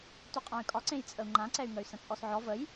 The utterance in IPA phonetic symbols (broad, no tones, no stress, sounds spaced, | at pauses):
t u qʼ ã y̯ kʼ ɒ ǀ ẽ j t͡sʼ ə u̯ ŋ͡ǃ ã ǀ ɛ y̯ ŋ ə y̯ s ə̃ t͡sʼ ɔ s ʕ ɔ v ə j